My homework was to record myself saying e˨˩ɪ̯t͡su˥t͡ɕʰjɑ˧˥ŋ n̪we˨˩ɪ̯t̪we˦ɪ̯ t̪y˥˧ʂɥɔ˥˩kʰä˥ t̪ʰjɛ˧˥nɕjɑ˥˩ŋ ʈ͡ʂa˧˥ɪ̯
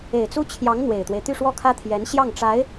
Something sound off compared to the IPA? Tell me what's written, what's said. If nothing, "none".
ɥ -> w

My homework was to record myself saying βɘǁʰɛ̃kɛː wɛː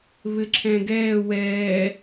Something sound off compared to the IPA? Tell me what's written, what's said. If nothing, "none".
k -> ɡ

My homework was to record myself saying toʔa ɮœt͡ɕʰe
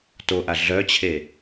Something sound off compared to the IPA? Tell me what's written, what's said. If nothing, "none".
none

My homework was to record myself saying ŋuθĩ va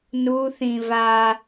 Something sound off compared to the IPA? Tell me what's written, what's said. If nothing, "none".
ŋ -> n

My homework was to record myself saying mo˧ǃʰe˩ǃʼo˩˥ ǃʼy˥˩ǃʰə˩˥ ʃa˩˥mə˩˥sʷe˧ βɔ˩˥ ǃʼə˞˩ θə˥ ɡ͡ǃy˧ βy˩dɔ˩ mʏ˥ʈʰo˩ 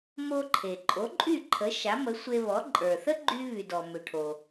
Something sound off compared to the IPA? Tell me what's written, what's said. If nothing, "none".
ʏ˥ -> ʏ˩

